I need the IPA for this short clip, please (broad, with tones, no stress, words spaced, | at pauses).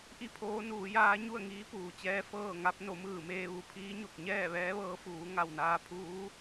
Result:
ʔi˥˨pʰoː˧˥nuː˩˧jaː˧˥ ɲu˥˨ə̯ŋiː˧˥puː˩t͡ɕɛː˧ fɤː˥˨ŋa˧˥p̚ no˩˧mɯː˧˩meː˧ ʋu˧˩pʰiː˧˥ɲo˧˩k̚ ɲɛː˥˨ʋɛː˧˥ʋɤː˧˥fuː˩˧ ŋa˧˩wnaː˧pʰuː˧˥